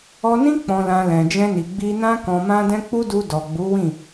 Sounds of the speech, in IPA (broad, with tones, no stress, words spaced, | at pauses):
ɔ˧nĩ˦ k͡pɔ̃˧lã˧ lɛ̃˨d͡ʒɛ̃˧ni˨ ɡ͡bi˧nã˦ kɔ̃˧mã˦dɛ̃˦ k͡pu˦du˧ dɔ˨ɡ͡bu˨˦wĩ˦˨